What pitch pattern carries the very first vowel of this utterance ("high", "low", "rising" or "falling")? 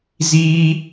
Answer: high